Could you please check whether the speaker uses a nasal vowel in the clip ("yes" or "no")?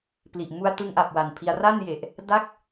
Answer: no